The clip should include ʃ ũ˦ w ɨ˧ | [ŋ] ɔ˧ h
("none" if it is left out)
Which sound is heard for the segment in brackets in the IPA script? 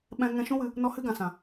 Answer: n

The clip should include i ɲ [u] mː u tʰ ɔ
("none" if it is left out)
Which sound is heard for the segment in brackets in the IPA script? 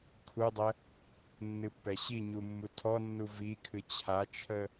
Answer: u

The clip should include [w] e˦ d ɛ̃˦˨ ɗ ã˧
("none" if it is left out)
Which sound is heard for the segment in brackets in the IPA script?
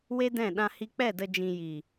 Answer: w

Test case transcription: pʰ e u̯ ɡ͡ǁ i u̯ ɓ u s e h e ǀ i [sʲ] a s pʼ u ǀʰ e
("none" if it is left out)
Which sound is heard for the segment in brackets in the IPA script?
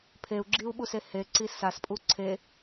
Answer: s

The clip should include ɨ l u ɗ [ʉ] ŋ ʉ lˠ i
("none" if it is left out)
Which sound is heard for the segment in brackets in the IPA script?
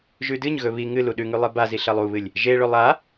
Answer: ʉ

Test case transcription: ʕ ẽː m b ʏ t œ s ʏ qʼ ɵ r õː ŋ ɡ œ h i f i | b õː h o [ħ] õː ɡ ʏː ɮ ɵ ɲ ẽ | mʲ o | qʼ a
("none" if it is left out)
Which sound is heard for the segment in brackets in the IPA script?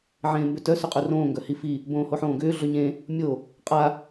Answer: ħ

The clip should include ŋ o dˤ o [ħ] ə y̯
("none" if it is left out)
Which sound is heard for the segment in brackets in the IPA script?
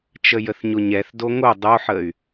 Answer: ħ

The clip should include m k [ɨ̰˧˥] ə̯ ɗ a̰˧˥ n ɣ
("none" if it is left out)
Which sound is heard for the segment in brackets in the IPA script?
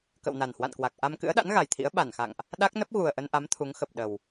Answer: ɨ̰˧˥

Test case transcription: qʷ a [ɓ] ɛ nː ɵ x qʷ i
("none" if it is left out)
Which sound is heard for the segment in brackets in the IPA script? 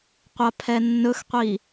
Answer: pʰ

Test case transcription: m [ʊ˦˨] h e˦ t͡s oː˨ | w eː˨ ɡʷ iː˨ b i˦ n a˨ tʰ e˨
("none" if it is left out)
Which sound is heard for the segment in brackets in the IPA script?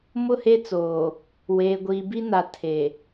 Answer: ʊ˦˨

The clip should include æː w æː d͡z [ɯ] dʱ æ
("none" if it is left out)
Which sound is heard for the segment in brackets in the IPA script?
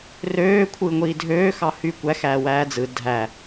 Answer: ɯ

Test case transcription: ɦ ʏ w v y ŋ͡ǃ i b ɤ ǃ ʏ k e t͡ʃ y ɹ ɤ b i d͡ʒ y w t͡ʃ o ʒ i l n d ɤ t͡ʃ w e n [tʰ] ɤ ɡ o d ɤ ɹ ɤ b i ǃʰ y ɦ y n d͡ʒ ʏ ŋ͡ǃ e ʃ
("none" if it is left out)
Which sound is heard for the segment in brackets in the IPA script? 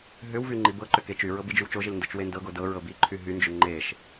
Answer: d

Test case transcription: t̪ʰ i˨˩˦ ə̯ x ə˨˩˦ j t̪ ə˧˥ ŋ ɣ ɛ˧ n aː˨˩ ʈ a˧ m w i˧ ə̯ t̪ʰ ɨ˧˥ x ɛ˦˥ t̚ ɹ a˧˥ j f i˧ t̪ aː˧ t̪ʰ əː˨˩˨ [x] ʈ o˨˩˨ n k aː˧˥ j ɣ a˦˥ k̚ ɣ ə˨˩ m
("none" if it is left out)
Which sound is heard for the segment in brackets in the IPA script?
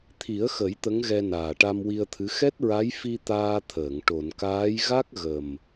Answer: ŋ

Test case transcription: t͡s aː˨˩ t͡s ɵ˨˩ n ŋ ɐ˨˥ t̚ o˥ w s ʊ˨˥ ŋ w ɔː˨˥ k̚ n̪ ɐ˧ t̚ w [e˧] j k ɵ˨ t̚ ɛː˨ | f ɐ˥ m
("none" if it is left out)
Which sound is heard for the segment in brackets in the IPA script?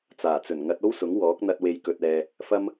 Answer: e˨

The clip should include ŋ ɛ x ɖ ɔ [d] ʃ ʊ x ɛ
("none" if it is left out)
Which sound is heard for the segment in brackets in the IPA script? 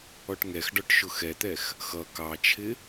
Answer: ʈ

